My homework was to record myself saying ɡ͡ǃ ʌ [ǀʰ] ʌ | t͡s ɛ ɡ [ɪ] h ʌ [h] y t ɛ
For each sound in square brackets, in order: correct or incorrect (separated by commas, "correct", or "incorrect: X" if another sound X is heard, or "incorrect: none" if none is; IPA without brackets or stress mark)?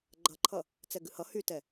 incorrect: ǃʰ, incorrect: ɨ, correct